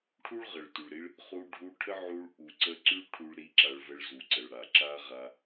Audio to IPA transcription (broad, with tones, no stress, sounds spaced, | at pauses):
ʈʰ u˦ ɭ ʁ ə˨ ɭ t y˨ ɭ ɾ i˦ ɭ | χ u˧ ɖʱ u˧ ʈʰ ə˦ ʕ u˧ ɭ ʔ u˨ ǀ ə˧ ǀ y˦ ɭ ʈʰ u˧ ɭ ɾ i˧ ǁ a˧ ɭ v ə˧ ɭ z u˨ ǀ ə˨ ɭ ɽ a˨ ǁ a˦ ʁ a˧